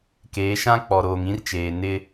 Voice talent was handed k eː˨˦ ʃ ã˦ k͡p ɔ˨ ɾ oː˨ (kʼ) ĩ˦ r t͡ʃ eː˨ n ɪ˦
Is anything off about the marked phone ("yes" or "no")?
yes